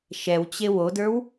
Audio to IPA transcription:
ʃɛwt͡ɕe wodə˞w

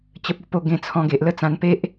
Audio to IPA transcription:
t͡ɕə˦p̚ ə˧po˥˧ ɡẽ˧ t͡sʰɔ̃˧ɡe˨ʔ lə˦t͡sã˧npe˦ʔ

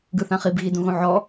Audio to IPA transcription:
ɡɯθãχib ɣidũɣõʕɔ

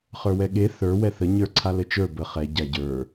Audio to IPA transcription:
χə˞wɛɠe θə˞ wɛθə ɲə˞ǀʰalɘt͡ʃə˞ bə χɛ ɟaɟə˞

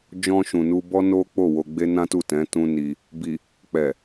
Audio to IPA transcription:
d͡ʒɔ̃˧ʃũ˨nu˧ bɔ˦no˦ k͡po˦˨wo˧ ɡ͡be˦nã˦tu˦˨tɛ̃˨˦ tũ˦ni˧ | bi˨ | k͡pɛ˨

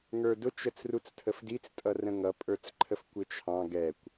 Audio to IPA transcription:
ŋə˞dʊ t͡ʃət͡srut͡stʰəfdit͡s tʼʌrə̃ŋʌ pʼə˞t͡sǃʰəfkʷɪt͡ʃʰɑ̃ ɡɛkʷ

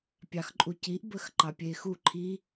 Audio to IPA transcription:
pʲɑxǃʼuciʔ bəxǃɑpʲexu ǃʰi

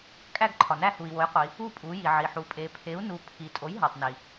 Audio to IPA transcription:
kʼæ˦˨ɡǃʰɒ˩næ˦˨ hu˩i̯wo˩˥jqʷi˩˧ | u˦˨ pʼu˩˧ji˩ʕi˩ ħu˩pʼe˩˧ pʰe˩˥u̯nu˩˧ pʰi˩ tʼo˩˥jɦɒ˩tˤni˩

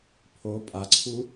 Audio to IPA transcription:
pʰo pʼaǀʰu

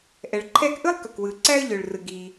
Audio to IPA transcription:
ʔɛ˩ɭǃʰɛ˥k ʔɯ˥lˠkɵ˩kwɯ˩ ǀæ˥ə̯ʎø˩ɭrɯ˩ ɡi˩

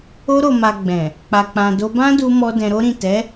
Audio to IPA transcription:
o˧ɾo˨ma˨ ɡ͡bɛ̃˨ | k͡pa˨k͡pã˨ do˧bã˦du˧mɔ˧ dɛ̃˧ɾo˦ɾĩ˦˨ tɛ˨˦

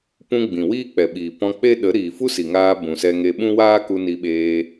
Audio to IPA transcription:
pũ˧ ɡ͡bĩ˨wiː˦k͡pɛ˨ɓiː˨ pɔ̃˧k͡pe˦ ɗə˨˦ɾiː˨ fu˦si˨ ŋaː˧ bũ˨sɛ˧ŋe˧ ɓũ˦waː˦ku˧ ni˧ɓeː˧

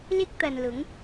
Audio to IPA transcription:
lɪ˥k̚t̪ɐ˨nlʊ˨˥ŋ

